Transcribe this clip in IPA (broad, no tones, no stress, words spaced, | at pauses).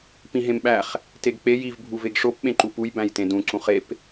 pĩɦẽmɓæχ | teɡk͡pe jiv bʱuveɡʂop ɓẽǃupuj bæ̃jtẽdũ ǀũχep